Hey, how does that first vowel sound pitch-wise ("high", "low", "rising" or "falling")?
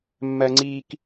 low